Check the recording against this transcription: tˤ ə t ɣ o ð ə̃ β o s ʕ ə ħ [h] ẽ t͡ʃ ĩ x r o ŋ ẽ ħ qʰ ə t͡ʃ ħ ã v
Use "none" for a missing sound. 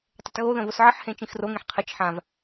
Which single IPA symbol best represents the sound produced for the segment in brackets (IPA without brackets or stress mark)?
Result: h